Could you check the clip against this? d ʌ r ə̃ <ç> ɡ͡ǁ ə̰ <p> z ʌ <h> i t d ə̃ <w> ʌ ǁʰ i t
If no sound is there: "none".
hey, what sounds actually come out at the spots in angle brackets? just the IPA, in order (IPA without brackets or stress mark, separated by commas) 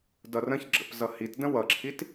ç, p, h, w